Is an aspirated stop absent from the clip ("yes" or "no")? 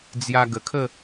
no